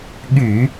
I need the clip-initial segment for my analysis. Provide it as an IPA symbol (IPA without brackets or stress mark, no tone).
ɠ